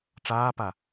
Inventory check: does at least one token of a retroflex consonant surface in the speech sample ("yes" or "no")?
yes